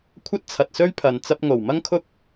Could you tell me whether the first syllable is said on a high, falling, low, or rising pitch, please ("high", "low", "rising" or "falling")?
high